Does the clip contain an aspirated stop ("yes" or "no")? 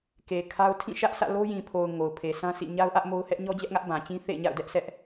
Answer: yes